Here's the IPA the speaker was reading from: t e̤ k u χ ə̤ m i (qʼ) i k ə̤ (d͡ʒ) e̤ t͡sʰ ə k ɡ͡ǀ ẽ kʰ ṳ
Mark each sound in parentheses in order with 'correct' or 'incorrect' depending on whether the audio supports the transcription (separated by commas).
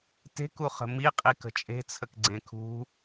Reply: correct, incorrect